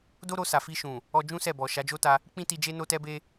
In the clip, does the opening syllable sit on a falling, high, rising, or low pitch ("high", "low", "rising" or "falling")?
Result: high